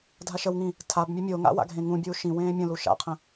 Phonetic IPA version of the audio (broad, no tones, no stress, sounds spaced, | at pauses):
dʱ a ʃ ə w ŋ ĩ | tʰ a b mʲ ɵ mʲ o ŋ a̰ w a̰ ɡʱ ẽ ŋ ũ bʲ uː ʃ ĩ w ẽː mʲ ə̃ l u ʃ a̰ qʰ ə̃